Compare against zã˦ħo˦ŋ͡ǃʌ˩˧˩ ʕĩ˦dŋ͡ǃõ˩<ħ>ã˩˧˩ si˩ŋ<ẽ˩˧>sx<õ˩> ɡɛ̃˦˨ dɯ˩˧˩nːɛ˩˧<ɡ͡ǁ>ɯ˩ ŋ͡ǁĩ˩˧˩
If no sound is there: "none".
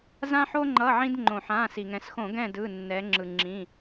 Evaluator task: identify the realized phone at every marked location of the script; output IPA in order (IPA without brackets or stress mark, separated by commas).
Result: ħ, ɛ̃˩˧, õ˧˩˧, ŋ͡ǁ